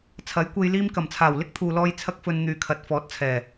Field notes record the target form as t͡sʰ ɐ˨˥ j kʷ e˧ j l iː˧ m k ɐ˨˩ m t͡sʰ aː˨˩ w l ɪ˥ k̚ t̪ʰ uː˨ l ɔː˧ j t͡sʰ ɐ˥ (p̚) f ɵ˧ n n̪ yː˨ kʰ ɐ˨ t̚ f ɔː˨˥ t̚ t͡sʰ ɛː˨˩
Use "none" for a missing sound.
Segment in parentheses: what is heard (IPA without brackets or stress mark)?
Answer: k̚